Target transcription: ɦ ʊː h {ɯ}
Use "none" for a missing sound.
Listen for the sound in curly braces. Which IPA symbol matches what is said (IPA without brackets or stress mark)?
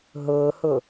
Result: ʊ